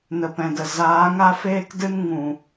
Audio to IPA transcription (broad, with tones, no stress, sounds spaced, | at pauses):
n ə˨ p ɛ̃˨ d ə˨ z aː˨˦ ŋ a˦ f eː˦ k d ɨ˦ n ŋ ũ˨